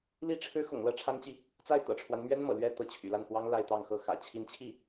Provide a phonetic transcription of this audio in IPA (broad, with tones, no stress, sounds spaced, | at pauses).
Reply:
l i˥˩ ʈ͡ʂʰ ɻ̩˥ x ʊ̰˨˩ ŋ l ɤ˥˩ ʈ͡ʂʰ a˥ n t͡ɕ i˨ | t͡s a˥˩ ɪ̯ t̪ ɤ̰˨˩ ʈ͡ʂʰ w a˦ n m ɥ ɛ˥ n m ɤ̰˨˩ l ɥ ɛ˥ t̪ ɤ˧˥ t͡ɕʰ y̰˨˩ l a˥˩ n x w ɑ˥ ŋ l a˥˧ ɪ̯ t̪ ɑ˥˩ ŋ x ɤ˥ x ä̰˨˩ t͡ɕʰ i˧˥ n t͡ɕʰ i˥˩